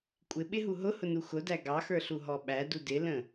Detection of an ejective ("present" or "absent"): present